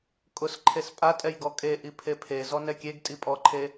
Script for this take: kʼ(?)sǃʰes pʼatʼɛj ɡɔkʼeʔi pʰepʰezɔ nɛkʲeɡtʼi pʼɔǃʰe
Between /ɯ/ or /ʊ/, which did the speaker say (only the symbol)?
ʊ